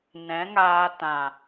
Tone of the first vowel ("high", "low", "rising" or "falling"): rising